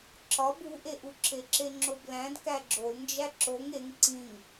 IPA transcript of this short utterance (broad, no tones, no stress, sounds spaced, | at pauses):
ǁ ɒ b u ʔ e ʔ u ǁ e ǁ e ŋ͡ǁ o b l æ̃ d k æ ɡ͡ǁ o l n d͡ʒ æ ǁ o ŋ e ŋ ǀ ĩ ŋ